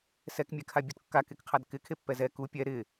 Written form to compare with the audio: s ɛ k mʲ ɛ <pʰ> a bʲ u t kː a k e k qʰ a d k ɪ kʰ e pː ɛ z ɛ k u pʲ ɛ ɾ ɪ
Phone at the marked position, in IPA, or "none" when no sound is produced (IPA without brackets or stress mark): kʰ